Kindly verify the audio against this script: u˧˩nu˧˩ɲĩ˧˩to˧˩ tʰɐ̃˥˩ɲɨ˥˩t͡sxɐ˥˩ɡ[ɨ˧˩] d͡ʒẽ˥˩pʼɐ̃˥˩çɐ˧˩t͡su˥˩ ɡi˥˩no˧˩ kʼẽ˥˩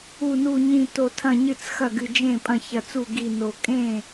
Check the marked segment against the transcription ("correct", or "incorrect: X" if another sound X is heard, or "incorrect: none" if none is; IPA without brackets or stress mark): correct